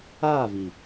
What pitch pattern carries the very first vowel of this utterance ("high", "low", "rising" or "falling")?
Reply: falling